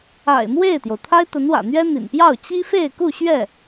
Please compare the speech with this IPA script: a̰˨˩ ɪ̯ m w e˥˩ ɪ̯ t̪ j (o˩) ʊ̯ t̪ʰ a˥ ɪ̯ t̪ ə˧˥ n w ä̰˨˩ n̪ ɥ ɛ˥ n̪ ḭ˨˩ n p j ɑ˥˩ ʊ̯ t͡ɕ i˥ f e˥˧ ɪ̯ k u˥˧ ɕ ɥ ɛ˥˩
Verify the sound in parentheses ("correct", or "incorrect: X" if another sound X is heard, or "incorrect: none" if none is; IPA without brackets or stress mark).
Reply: correct